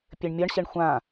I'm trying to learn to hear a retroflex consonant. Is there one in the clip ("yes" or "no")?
yes